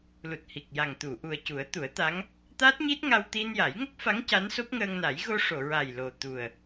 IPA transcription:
l u˨˩ t̚ h i˨˩ k̚ j a˨˩ ŋ t̪ u˨˩˨ ʔ u˨˩ ə̯ c u˨˩˦ ə̯ t̪ u˨˩˦ ə̯ t̪ a˧˥ ŋ | t̪ aː˦˥ t̚ ɲ i˦˥ t̚ ŋ a˧ w t̪ i˧ n j a˨˩˦ j ŋ ə˦˥ k̚ f a˧˥ ŋ c a˧˥ n s o˦˥ p̚ ŋ əː˧ ŋ n a˨˩˦ j ɣ o˧ ʂ o˨˩˨ ɹ a˨˩ j l o˨˩ t̪ u˨˩ ə̯

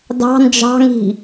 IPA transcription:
d ɑ̤ n d͡ʒ ɑ̤ ŋ i̤

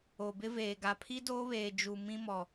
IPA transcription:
o˨ b ɪ˦ v eː˨ ɡ a˨ pʰ i˦ d oː˦ β eː˨ d͡ʒ u˨ m ĩ˦ m ɔ˨

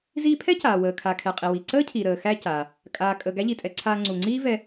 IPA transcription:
z iː˧ pʰ ɛ˥ c aː˩ w əː˩ kʰ a˩ kʰ ɛ˩ qʼ i˩ w i˩ ǀ əː˥ cʰ i˩ ɾ əː˩ x æ˧ c a˩ | kʼ aː˩ kʼ ə˩ ɡ æ˥ ʎ i˩ tʼ ɛ˩ ǀʰ aː˧ ŋ͡ǀ u˩ ŋ͡ǀ iː˥ v ɛ˧

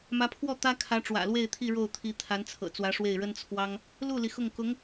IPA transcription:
m ä˧˥ pʰ w ɔ˥˩ t̪ ä˥ kʰ ä˧˥ ʈ͡ʂ w ä̰˨˩ l w e˥˧ ɪ̯ t̪ʰ i˥˧ ɻ o˥˩ ʊ̯ t̪ʰ i˧˥ t̪ʰ a˧˥ n t͡sʰ ɤ̰˨˩ t͡s w ä˧˥ ʂ w e˥˩ ɪ̯ ɻ ə˥ n t͡sʰ w ɑ˥ ŋ | l u˥˩ l i˩ x ʊ˥˩ ŋ k ʊ˧˥ ŋ

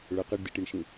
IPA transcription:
ɭ ʌ q ʌ ɖ d ɨ ʈ i ɳ ʃ ĩ

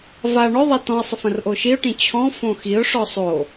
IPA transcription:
v a ɳ ɔ ðˤ a t ɔ̃ ə̯ sˤ ə f ə̃ r ʔ o ʃ i ʊ̯ ʈ ĩ t͡ɕʰ ɔ̃ f õ x i ʊ̯ ʂ ɔ sˤ o

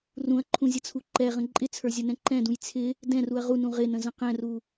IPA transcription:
r ũ ɐ̯ ǃʰ ũ zʲ ə t͡sʰ u ǃ ɛ ʁ ə̃ ǃʼ ɪ t͡sʰ ə˞ zʲ ə n ɛ̃ ǃ ɛ̃ d ũ j t͡sʰ ɪ | d ɛ̃ r u ɐ̯ ʁ u n ũ ʁ ɪ n ə̃ z ə̃ q ɛ̃ r u

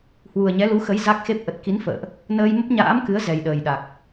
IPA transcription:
h w u˨˩ ə̯ ɲ ɛ˨˦ l u˨˦ x ə˨˦ j z a˦˥ k̚ x e˦˥ p̚ ʔ ə˨˩ t̚ k i˨˦ n f ə̰ː˧˨ ʔ | n əː˧ j m ə˦˥ p̚ ɲ a̰ː˧˥ m k ɨ˨˦ ə̯ z ɛ˨˩ j ɗ əː˨˩ j ɗ a˨˩ k̚

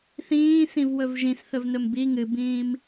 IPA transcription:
θ ĩː s ĩ v w ɵ v ʒ ĩ s θ ɵ v n ɵ m b i ŋ ɨ b ĩː m

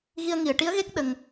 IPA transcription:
ɣ i˧ ə̯ ŋ i˨˩˨ ə̯ ʈ i˧˥ ə̯ ɣ e˦˥ k̚ ɗ ə˧ ŋ

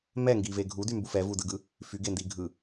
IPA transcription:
m ɛ ŋ ɡ i v e ɡʱ u d y m b u f ɛ v u d ɯ ɡ ɯ | f y ɡ e n d i ɡʱ ɯ

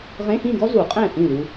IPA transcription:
ʁ ẽ˧˥˧ x ĩ˥˧ ɡ ɔ˥ z u˨˩˦ qʼ ɛ̃˥˩ θ ĩ˥˩ l u˧

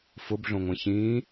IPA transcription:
f ʊ b ɮ õ ŋʷ ɛ̃ ç ĩː

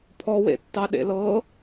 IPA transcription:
pʰ ɔ w ḛ tː ɑ ɗ ḛ l ɤ

